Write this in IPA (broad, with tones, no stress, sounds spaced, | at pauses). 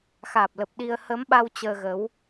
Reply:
x aː˨˩ p̚ l ə˨˩ p̚ ɗ i˧ ə̯ h əː˨˦ m ɓ a˧ w t͡ɕ əː˧ ɣ ə˨˦ w